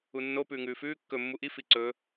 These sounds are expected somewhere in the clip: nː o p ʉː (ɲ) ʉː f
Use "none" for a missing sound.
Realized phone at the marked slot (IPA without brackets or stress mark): ŋ